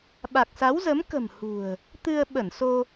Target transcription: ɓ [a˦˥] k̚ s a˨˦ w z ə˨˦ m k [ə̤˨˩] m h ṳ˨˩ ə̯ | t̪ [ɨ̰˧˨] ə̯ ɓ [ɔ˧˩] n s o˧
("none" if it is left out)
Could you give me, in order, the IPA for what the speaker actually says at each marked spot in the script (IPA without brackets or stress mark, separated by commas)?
a˨˩, ə̤˨˩, ɨ˧, ə˧˩